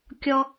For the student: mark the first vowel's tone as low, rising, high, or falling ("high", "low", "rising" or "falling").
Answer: high